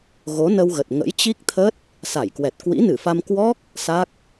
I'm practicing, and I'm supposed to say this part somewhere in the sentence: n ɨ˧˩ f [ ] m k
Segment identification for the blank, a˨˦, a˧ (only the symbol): a˧